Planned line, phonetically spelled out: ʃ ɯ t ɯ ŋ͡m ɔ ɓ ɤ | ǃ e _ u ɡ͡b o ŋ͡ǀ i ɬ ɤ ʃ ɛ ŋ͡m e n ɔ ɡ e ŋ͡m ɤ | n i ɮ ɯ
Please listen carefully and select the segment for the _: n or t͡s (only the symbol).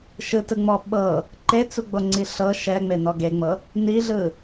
t͡s